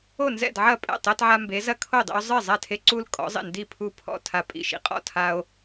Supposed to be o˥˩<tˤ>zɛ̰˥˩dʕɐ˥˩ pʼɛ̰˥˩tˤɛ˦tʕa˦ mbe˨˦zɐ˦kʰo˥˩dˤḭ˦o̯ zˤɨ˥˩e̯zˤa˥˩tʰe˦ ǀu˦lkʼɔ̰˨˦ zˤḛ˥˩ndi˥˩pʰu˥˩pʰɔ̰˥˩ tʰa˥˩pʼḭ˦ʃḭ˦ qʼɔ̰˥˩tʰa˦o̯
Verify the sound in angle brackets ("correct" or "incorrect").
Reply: incorrect